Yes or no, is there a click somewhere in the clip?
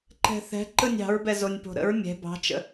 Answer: yes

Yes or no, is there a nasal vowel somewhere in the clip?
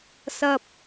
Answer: no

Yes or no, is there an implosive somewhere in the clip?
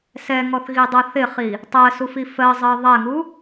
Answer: no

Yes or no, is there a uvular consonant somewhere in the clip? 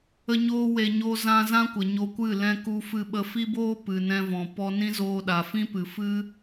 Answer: no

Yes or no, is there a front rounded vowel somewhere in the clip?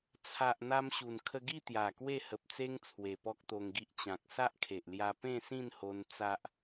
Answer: no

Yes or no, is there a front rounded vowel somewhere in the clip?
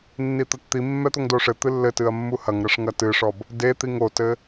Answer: no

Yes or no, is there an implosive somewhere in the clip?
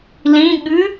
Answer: yes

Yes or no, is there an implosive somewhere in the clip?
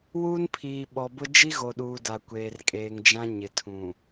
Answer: yes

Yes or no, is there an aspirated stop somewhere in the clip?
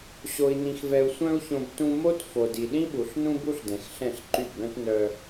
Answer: no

